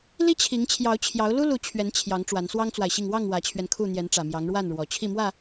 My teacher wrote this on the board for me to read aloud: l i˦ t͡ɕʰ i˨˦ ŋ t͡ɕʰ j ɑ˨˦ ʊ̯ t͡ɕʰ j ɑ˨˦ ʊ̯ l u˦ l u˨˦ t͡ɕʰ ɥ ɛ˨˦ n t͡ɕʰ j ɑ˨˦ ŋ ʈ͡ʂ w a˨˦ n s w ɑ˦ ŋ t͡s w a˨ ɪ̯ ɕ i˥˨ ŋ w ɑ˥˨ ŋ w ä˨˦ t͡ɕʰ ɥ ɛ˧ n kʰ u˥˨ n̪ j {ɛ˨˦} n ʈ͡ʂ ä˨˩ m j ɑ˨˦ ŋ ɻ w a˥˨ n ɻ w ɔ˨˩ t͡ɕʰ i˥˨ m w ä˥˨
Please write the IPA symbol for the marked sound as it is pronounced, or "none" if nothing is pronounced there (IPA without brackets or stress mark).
ɛ˨˦